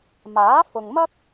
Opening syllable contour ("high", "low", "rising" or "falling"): rising